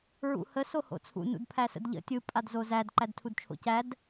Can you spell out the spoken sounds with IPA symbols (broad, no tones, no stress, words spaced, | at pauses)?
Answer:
ɹṵhə soho̰t͡sʰṵ nṵdpʰæsə̰dʎə̰ tʲɯ pʼadzozæd ǃædtʰudt͡ʃʰo̰cæd